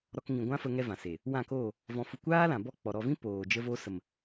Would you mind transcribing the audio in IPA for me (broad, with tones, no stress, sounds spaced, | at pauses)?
ɾ ɔ˧ k ŋ ĩ˨ ɡʷ ã˦ f ə˧ ŋ ɛ˦ v ã˨ s e˨ | w ã˦˨ k oː˦˨ | v ɔ̃˧ f u˧ kʷ aː˦ l ã˨ b ɔ˦˨ k͡p ɔ˨ ɾ ɔ˧ v ĩ˦ p oː˨ d͡ʒ ə˧ v o˧ s ə˨ m